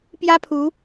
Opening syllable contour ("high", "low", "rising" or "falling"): high